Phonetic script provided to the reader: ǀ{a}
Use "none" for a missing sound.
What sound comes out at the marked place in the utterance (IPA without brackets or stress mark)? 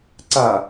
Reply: a